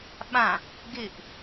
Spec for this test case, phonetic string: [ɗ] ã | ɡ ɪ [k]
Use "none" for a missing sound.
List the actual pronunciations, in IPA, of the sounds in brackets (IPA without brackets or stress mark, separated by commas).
ɓ, ʔ